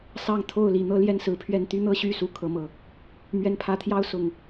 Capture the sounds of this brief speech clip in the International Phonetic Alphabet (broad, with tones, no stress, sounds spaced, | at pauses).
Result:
s ɑ˥˨ ŋ t̪ʰ o˥˨ ʊ̯ l i˨˩ n̪ ɤ˦ l j ɛ˦ n s ɹ̩˨˦ pʰ ɥ ɛ˦ n t̪ y˦ n̪ ɤ˦ ɕ y˥˨ s u˦ kʰ ɤ˦ m ɤ˨˦ | m ɥ ɛ˨˦ n pʰ ä˨˦ t̪ʰ j ɑ˦ ʊ̯ s ʊ˨˩ ŋ